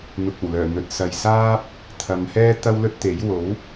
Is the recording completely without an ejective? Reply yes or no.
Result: yes